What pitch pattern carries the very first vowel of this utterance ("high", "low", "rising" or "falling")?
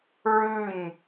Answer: falling